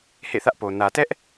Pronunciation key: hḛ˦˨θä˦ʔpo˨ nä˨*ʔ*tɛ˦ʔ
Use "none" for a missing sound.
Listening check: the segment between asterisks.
none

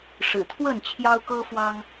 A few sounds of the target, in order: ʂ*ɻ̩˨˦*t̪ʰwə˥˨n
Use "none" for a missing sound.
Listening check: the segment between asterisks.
ɻ̩˨˩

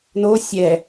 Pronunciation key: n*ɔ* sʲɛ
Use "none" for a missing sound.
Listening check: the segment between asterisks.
o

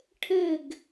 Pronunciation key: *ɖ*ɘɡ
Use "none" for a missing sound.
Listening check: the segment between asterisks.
ʈʰ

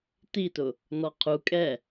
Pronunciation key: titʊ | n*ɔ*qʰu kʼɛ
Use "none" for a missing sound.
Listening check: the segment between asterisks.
ɔ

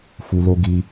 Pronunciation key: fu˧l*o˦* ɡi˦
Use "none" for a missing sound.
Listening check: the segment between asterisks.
o˦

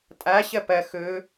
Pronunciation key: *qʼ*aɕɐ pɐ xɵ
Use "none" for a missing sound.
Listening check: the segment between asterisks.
tʼ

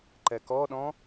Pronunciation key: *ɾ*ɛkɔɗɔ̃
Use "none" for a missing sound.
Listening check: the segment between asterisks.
ǃ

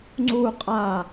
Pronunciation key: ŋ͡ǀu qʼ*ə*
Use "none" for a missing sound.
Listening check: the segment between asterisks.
a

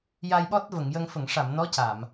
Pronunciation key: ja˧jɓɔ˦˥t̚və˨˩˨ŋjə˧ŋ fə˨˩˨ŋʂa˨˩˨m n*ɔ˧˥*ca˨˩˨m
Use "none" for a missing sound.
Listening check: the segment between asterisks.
ɔ˧˥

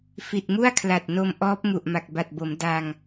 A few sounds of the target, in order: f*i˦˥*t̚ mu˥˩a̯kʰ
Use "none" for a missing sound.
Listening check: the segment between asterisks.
i˨˩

